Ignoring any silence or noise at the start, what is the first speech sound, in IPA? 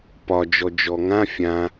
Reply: p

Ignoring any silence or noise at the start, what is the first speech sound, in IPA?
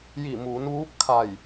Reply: j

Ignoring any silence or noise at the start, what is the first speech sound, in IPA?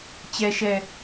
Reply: t͡ɕ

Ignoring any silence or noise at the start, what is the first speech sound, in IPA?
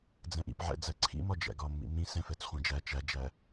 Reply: d͡z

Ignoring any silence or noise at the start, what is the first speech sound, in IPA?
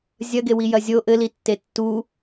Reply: zʲ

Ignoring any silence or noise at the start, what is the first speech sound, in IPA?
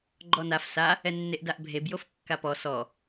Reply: ɡ͡ǃ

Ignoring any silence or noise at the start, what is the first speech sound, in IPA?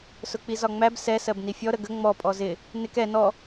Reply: s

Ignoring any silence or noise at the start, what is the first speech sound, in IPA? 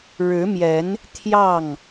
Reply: ɻ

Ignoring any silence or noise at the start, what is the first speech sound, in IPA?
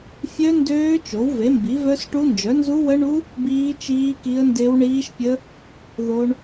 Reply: fʲ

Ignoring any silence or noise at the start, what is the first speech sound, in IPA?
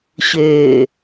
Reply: ɕ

